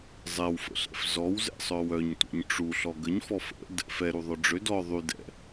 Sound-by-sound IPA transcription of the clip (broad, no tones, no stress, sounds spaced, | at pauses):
zˤ ɛ w f ə̰ ɬ ɛ̰ f z ɔ w z ɛ̰ sˤ œ w œ ɲ tʷ ɛ̰ ɲ ʈ͡ʂ u ɬ ɔ ɡ ə ɲ f ɔ f ə̰ d | f ɛ ɾ u ðˤ œ ɖ͡ʐ ø d ɔ ðˤ y d ɛ̰